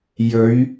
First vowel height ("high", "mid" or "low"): mid